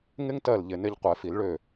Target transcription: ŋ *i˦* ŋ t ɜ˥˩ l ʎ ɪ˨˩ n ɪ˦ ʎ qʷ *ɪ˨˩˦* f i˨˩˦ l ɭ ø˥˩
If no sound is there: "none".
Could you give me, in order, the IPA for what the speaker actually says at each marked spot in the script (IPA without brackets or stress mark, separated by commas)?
ɪ˦, ɛ˨˩˦